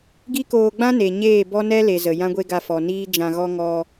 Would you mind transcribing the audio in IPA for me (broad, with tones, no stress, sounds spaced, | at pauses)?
ɡ i˦ k oː˧ ɡ͡b ã˦ n e˨ ɲ eː˦˨ b ɔ˦ n ɛ˦ l e˨ z ə˨ j ã˦ ɡʷ e˦ ɡ a˧ f ɔ˨ n iː˦ d͡ʒ ã˧ ɣ ɔ˦ ŋ ɔ˧